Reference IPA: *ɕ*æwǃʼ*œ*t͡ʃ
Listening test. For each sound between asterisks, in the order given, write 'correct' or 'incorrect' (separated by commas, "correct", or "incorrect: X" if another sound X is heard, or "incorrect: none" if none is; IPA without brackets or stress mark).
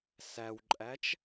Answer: incorrect: s, incorrect: æ